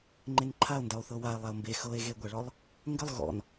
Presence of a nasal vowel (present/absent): absent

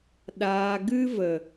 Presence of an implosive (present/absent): present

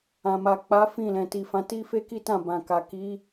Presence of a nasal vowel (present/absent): present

